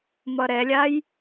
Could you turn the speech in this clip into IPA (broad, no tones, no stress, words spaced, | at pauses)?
mʌɾɛlʲaj